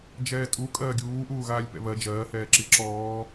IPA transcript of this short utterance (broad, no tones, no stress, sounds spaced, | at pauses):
d͡ʒ ɛː tʼ u kʼ ɜː ɡʲ uː ʔ uː ɣ aː lʲ p ɛ̰ β ɜ d͡ʒ ɜː h ɛː ǁ i ǁ ɔː